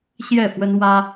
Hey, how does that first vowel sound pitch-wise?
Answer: falling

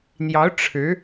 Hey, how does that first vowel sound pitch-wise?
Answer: rising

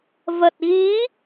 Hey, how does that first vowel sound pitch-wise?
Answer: low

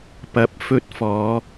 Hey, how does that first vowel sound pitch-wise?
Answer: rising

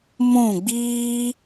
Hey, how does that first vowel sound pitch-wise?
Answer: falling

